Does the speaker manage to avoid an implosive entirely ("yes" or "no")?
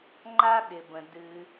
no